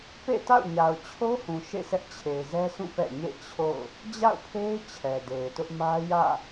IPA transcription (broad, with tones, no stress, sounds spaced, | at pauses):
p ḛ˦˨ t a̰˦˨ ʊ̯ ɲ a˨ ʊ̯ t͡ɕʰ o˦ h ũ˨ ʃ ḛ˦˨ sʰ ɛ˦ ʔ t͡ɕʰ e˨ ɪ̯ z ɛ˦ sʰ ũ˦˨ p ɛ̰˦˨ ɲ ḛ˦˨ t͡ɕʰ o̰˦˨ ʊ̯ | d͡ʑ a̰˦˨ ʊ̯ pʰ e˦ ɪ̯ t͡ɕʰ ɛ˨ d e˨ ɪ̯ t ʊ˦ ʔ m ä˦ j ä̰˦˨